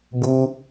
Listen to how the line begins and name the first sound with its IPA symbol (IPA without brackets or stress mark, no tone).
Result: b